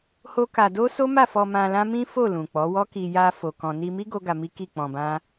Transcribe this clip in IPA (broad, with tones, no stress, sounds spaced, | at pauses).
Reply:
h o˦ k a˧ d o˦ s o˦ m a˦˨ f ɔ˧ m ã˧ l ã˦ m ĩ˦ f o˦˨ l ũ˨ k͡p ɔ˨˦ w ɔ˦ k i˧ j a˧ f o˧ k ɔ̃˨ n i˧ m i˦ ɡ o˦ ɡ a˧ m i˦ k i˦˨ k͡p ɔ̃˧ b ã˦